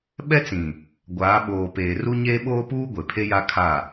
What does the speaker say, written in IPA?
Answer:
ɓ ɛ˦ t͡s ĩ˨ | ɡʷ aː˨˦ ɓ oː˨ p eː˨ r u˦ ɲ eː˦ ɓ oː˦ p uː˦ ɡʷ e˨ pʰ e˦ j a˦ kʰ a˦˨

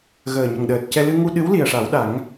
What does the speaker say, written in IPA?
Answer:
ɣ əː˨˩ ɲ ə˨˩ ŋ ɗ əː˨˩ t̚ c ɛ˧ l ɨ˧ ŋ u˧ ɗ ɨ˧˥ w l i˨˩ ə̯ ʂ a˨˩˦ w ɗ a˨˩˦ ŋ

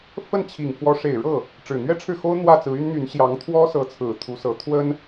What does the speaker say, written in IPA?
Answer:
f ə˥˩ n t͡ɕʰ i˨˩ ŋ f w ɔ˧˥ ʂ e˨˩ ɪ̯ ɻ ɤ˥˩ | ʈ͡ʂ ɻ̩˨˩ n̪ ɥ ɛ˥ ʈ͡ʂʰ ɻ̩˥˩ x o˥ ʊ̯ n̪ w ä˥˩ t͡s ɹ̩˧˥ y˥ n n̪ y˧˥ n ɕ j ɑ˧˥ ŋ t̪ʰ w ɔ˥ s ɤ˧˥ t͡sʰ ɹ̩˨˩ t̪ʰ u˧˥ s ɤ˧˥ t̪ʰ w ə˥ n

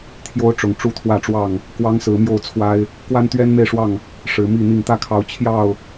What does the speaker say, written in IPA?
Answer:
t̪ʰ j o˦ ʊ̯ ʈ͡ʂ ʊ˨˩ ŋ ʈ͡ʂ u˥˨ t̪ʰ w ä˥˨ ʈ͡ʂ w ɑ˥˨ ŋ | k w ɑ˦ ŋ s ɹ̩˨˦ m j o˥˨ ʊ̯ t͡sʰ w a˦ ɪ̯ | k w a˦ n t̪ ɥ ɛ˦ n m e˥˨ ɪ̯ ʂ w ɑ˥˨ ŋ | ʂ ɻ̩˨˦ m i˥˨ n̪ i˥˨ ŋ t̪ ä˥˨ kʰ ɑ˨˦ ʊ̯ t͡ɕʰ j ɑ˥˨ ʊ̯

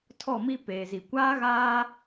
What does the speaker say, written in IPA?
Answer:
tʰ ɔ˦˨ m i˦ p eː˨ z i˨ kʷ aː˦ ɣ aː˦

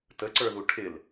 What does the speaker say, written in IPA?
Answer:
t ə ǀ ə˞ ð u ʈʰ ɪ l

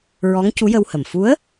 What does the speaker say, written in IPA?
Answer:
ɹ ɔ˧˥ ŋ c u˧˥ j ə˧ w h ə˨˩ m f u˧˥ ə̯

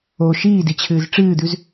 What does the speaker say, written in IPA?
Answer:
o ʃ iː d i t͡ɕʰ ɨː z ʈ͡ʂ ɨː d̪ ʉ z

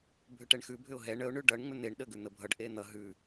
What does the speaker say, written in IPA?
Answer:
bʱ ʏ ʈ ɛ ɳ x ʉ bʱ ʏ ʊ̯ ɦ ɛ ɳ ə ʊ̯ ɳ ʉ ɖ ʌ ɳ ŋ͡m ʏ n̪ e ɳ ɗ ə ɡ ʉ n̪ ə bʱ ʌ ɖ ʔ e n̪ ʌ ɦ ʉ

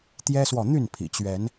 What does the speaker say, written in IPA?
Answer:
t̪ j ɛ˦ s w ɔ˨ n̪ y˥˨ n pʰ ḭ˨˩ t͡ɕ ɥ ɛ˨˦ n

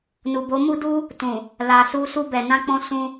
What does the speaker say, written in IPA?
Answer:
n u˨ b o˨˦ m u˦ d u˦ | t ũ˨ | l a˨ s u˧ s u˧ b ɛ˨ n ã˧ k͡p ɔ̃˧ s ũ˧

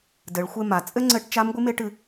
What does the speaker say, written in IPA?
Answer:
d ɘ˩˧ ɭ xʷ e˧ m a˩˧ t͡sʼ ɘ˥ ŋ͡ǀ ɘ˧˥ ʈ t͡ʃ a˧˥ m ɡʷ ɨ˧˥ m e˧˥ ʈ ɨ˧

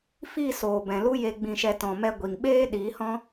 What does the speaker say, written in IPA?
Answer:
f i˦˨ s oː˨ b ɛ̃˨ l u˦ j e˧ ɡ͡b ĩ˧ ʃ ɛ˧ t ɔ̃˨ m ɛ˧ ɡʷ i˨ ŋ ɓ eː˦ ɗ i˨˦ h ɔ̃˦

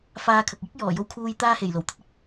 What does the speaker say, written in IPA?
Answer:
f aː˧ kʰ ɐ˨ k̚ j ɪ˥ k̚ j ɔː˨˩ j o˨ w kʰ uː˨ j t̪ aː˧ h e˨˩ j l o˨˩ w t̪ ɐ˨˥ t̚ ɪ˥ k̚

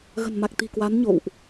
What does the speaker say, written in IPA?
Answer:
ɣ ə̤˨˩ n m a˨˩ k̚ t̪ i̤˨˩ k w a˨˦ n ɲ o̰˧˨ w ʔ

